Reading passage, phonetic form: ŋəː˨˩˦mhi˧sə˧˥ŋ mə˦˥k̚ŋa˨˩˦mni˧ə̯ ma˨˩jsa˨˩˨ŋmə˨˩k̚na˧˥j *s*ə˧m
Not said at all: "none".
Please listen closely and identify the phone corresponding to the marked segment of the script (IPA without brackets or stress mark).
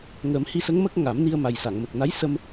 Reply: s